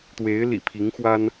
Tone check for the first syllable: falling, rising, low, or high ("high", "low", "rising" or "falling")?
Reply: rising